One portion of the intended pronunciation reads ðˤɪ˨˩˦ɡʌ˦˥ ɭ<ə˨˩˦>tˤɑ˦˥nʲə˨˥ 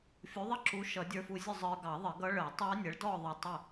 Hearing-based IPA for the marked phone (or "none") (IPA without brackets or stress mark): ə˨˩˦